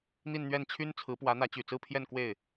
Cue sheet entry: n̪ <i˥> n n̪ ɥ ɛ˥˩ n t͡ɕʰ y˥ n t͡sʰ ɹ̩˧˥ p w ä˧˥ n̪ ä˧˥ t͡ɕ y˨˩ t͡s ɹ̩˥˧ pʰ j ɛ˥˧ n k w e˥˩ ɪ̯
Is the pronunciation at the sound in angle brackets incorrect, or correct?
incorrect